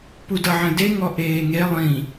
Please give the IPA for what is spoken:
p u d ʌ ʕ ə̃ d e ŋ ɔ ʔ eː ŋ e lˠ ĩ

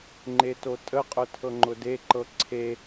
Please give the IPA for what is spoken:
ŋ͡ǃ e t o tʼ ə qʼ ʊ tʰ ɤ ŋ͡ǃ ʊ d e ǃ ɤ ǀʰ e

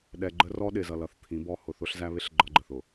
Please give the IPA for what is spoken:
ɗ ɛ˨ ɡ͡ǃ ə˦ r ɔ˦ ɗ ɪ˨ z ʌ˨ l ʌ˨ θ t̪ʰ ĩ˨˦ b ɔ˦ h ʊ˨ θ ʊ˦ ɬ z æ˦ β ɪ˦ ɬ ɡ͡ǃ ʌ˦ ɡ͡ǃ ə˨ θ ʊ˨

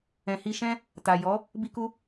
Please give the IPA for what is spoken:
ɛ̃˨ h i˧ ʃ ɛ̃˦ | t a˨ j ɔ˨˦ | b i˦ k u˦

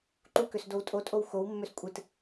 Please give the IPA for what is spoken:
ǃ u k ø s d o w tʼ o tʼ o w x o w mː ø s kʷʼ ɨ t

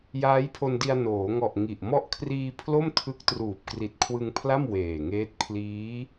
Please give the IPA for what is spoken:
j aː˦˥ j pʰ o˧ n d i˧ a̯ n oː˩˦ ŋ ɔ˨˩ ʔ ŋ i˨˩ ʔ m ɔ˦˥ ʔ kʰ r iː˧ pʰ l o˥˩ m tʰ ɯ˦˥ k̚ t r uː˨˩ p̚ k r i˨˩ t̚ kʰ w ɯ˧ ŋ pʰ l a˥˩ m w eː˨˩ ŋ eː˦˥ t̚ pʰ l iː˦˥

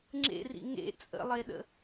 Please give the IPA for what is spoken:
ŋ͡ǁ ḛ r ḭ ŋ ḛ t͡sʼ ə̰ lˠ e ɗ ə̰

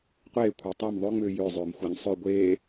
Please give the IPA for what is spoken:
qʷ eː kʷʰ e tˤ e m ðˤ ø ŋ͡m ʏː j ø zˤ ʏː m xʷ a ɲ sˤ ø ɡʷ eː

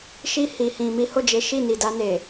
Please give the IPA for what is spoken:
ʃ i˧ h i˨ h ĩ˨ m i˨˦ h o˦˨ d͡ʒ e˨˦ ʃ i˦˨ n i˨ d a˧ n e˨

